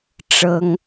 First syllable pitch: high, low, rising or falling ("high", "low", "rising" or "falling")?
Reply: high